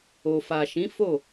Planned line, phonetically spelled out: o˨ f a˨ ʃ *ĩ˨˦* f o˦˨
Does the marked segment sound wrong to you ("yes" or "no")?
no